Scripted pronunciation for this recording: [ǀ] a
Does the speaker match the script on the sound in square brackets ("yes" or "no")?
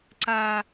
yes